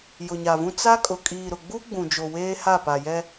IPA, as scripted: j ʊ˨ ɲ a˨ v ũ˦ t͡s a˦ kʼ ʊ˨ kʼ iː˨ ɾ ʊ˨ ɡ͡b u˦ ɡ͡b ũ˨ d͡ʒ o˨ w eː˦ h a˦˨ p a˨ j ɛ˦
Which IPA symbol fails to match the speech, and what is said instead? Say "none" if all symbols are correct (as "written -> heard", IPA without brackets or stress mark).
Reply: none